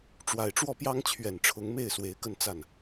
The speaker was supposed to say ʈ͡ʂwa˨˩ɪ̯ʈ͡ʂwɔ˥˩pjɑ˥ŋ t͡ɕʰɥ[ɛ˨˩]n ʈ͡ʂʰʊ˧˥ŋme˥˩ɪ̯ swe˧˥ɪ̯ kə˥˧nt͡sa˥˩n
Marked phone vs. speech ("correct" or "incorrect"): correct